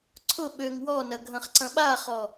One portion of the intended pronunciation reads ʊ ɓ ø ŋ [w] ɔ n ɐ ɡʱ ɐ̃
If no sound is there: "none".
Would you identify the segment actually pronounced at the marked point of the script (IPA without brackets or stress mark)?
w